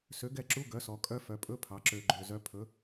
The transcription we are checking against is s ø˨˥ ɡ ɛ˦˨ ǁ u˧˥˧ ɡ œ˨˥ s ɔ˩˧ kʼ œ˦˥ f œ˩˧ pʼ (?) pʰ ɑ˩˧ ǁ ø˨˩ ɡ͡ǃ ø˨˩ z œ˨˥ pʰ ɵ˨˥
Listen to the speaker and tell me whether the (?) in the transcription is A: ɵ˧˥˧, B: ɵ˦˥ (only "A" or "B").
A